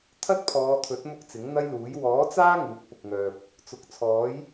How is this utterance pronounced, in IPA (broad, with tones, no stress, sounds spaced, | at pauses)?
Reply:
t̪ʰ ɐ˥ t̚ pʰ ɔː˨˧ t̪ʰ ɵ˨˥ t̚ m ʊ˥ k̚ t͡s ɪ˨˥ ŋ n̪ ɐ˥ j l uː˨˥ j w ɔː˨˥ t͡s aː˥ ŋ uː˨˥ k̚ p ʊ˨ k̚ ŋ œː˨ p̚ | t͡s ʊ˨ k̚ t͡sʰ ɔː˨˥ j